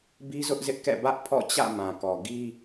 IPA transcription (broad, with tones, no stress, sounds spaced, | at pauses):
b i˦ z ʊ˦ ʔ z ɪ˦ ʔ k ɛ̰˦˨ b ä˦ ʔ pʰ ɔ̰˦˨ t͡ɕ ä̰˦˨ m ã˨ k ɔ˨ ɡ i˦